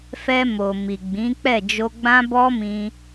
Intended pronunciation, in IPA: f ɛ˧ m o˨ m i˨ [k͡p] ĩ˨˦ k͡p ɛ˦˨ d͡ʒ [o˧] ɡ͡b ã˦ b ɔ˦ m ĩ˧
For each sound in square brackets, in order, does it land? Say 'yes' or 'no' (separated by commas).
no, yes